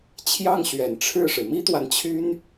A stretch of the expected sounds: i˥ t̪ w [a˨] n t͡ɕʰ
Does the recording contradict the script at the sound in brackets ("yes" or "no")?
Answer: no